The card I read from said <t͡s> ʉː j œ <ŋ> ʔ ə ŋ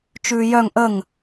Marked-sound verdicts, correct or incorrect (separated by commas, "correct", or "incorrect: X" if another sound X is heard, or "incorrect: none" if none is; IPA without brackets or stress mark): incorrect: t͡ʃ, correct